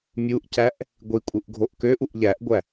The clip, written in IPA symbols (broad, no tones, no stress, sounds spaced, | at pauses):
mʲ u ʔ c æ ʔ | ɡʷ i kʷʼ ɯ ʔ ɡʱ o ʔ k ø ʔ u ʔ ʎ æ ʔ ɡʷ æ